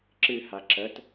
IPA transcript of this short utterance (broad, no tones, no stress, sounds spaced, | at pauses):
ǁ ɨ h a ǁ ə t